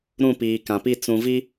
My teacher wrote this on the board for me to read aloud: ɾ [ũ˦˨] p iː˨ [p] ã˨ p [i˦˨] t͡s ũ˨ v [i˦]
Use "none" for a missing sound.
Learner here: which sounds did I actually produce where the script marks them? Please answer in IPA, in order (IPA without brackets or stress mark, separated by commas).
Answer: ũ˦˨, k, i˦˨, i˦